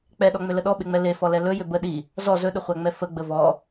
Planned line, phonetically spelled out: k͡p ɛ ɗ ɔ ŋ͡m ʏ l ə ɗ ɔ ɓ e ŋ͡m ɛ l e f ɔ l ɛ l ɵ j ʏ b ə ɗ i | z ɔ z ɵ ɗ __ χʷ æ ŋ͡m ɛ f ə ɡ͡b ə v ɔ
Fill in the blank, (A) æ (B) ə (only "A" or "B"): B